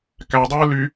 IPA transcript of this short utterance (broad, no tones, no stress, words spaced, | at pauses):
kædˤɯː ly